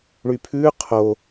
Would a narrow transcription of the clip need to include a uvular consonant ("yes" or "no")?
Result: yes